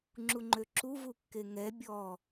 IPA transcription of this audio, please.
ŋ͡ǁ u ŋ͡ǃ ø ǁ u v u kː e ŋ ɛ bʲ ɔ

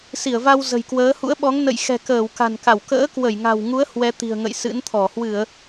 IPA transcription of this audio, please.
s i˧˩ ə̯ v a˧ w z ə̤˨˩ j k w əː˨˦ h ṵ˧˥ ə̯ ɓ ɔ˨˦ ŋ n ə̰˧˨ j x ɛ̤˨˩ k əː˧˩ w k a̤˨˩ n k a˧˩ w k ə̰ː˧˥ k w ə˧˩ j ŋ a̤˨˩ w ŋ u˨˦ ə̯ h w ɛ˨˦ t̪ i̤˨˩ ə̯ ŋ ə̰˧˨ j s ɨ̰˧˥ n t̪ʰ ɔ˧˩ h w ɨ˧˩˨ ə̯

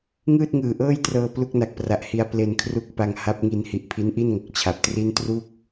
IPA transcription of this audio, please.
ŋ ɯː˥˩ t̚ ŋ ɯː˨˩ ʔ ɤː˥˩ j t r ɤː˧ p l u˥˩ k̚ n a˨˩ k̚ p r a˨˩ ʔ h i˧ a̯ p l e˧ n kʰ r u˦˥ k̚ p a˧ ŋ h a˦˥ p̚ ŋ i˧ n h i˨˩ ʔ pʰ i˦˥ n ʔ i˥˩ n ŋ o˨˩ k̚ t͡ɕʰ a˨˩ p̚ t r i˥˩ n t r u˥˩ k̚

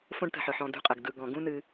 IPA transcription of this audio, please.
f õ˥ ɖ t ə̤˨ ħ ɯ˩ ħ ɔ̃˨ d ṳ˦ qʼ ə˩ ɡ d ɯ˨ ɡ ɔ̃˩ ɡ ũ˦ n ɨ˨

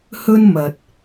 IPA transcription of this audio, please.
h ɵ˥ n m ɐ˧ t̚

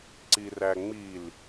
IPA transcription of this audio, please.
ǀ i r æ ŋ͡m i l

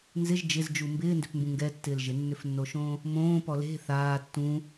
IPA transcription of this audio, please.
n z ɪ ʒ d͡ʒ ɪ z d͡ʒ u m b ɪː n d ʏ p m b ũ ŋ ɡ ɛ tː ɪː l ʒ ɪ nː ʏ f nː o ʃ õː | m õː p ɔ l e̤ θ aː tː ũ

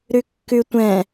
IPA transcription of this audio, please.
ɾ ʉ kː ʉ tʷ ɛ̃

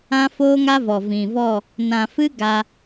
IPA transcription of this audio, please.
ã˦ f oː˦ ŋ a˦ v ɔ˨ v ĩ˨ v ɔ˦˨ | n ã˨ f ɨ˦ ɡ a˧

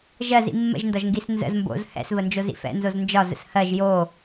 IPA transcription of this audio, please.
ʒ ɜ z ḭ mː ə̰ ʒ n d ɒ ʒ ŋ ɡ i s n z ə̰ z m b o̰ z h ɛ̰ s v ə n d͡ʒ o z ḭ f ɛ̰ n z o z n d͡ʒ ɒ z ə̰ s h ɜ ʒ j o

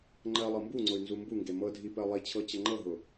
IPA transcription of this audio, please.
ŋ͡ǃ ɜ lˠ ɤ m b u ŋ͡ǀ ʊ y̯ n z u m b u ŋ ɡ e m ɤ dʱ i p ɜ lˠ i t͡ɕʰ ɤ t͡ɕ ə ŋ͡ǃ ɤ ɦ ʊ

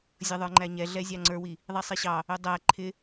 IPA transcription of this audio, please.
zʲ ʌ ðˤ ə˞ ŋ͡ǃ æ ɲ ɛ ɮ ɛ zʲ ɑ ŋ͡ǀ ə˞ w i | ðˤ i sˤ i ɕ ɑ | ʊ dˤ æ ǃʰ ɪ

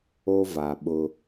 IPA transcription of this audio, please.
o˦ v a˨ ɓ ʊ˦

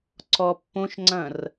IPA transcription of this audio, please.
ǀ ɔ pː õ ʃ ŋ͡ǀ ɐ̃ r

